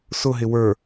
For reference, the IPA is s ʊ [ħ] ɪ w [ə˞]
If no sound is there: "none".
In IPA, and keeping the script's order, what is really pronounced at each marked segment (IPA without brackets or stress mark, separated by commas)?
ɦ, ə˞